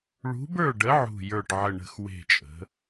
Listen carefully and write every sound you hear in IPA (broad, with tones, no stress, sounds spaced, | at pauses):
ɭ ṳ˧˥ b ə˞˥˨ ɖ ə˧˥ ʕ ṳ˥˨ j ə˞˥˨ ʈ ʕ ə˥˨ ɳ ə̤˥˨ x w e̤˥˨ t͡ʃʼ ə̤˧˥